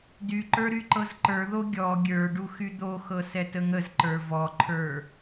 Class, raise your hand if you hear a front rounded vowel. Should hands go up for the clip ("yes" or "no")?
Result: yes